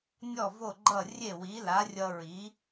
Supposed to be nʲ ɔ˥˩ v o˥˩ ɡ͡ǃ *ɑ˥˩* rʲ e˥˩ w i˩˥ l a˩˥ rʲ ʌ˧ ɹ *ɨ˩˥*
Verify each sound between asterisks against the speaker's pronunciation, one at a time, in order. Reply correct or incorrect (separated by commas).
incorrect, incorrect